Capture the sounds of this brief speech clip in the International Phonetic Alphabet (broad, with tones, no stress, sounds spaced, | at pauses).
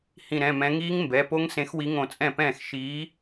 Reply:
h ĩ˧˩ ɾ ɛ̃˩˧˩ m ɛ̃˨˥ ŋ iː˦˥ ŋ m b ɛ˩˧˩ p o˦˥ ŋ s ẽ˨˥ x w i˨˥ ŋ õ˧˩ t͡sʼ ɛ̃˥˩ p ɛ̃ː˥˩ x ʃ iː˨˥